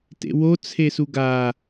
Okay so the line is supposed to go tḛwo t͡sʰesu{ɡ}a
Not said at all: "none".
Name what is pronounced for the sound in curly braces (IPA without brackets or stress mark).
ɡ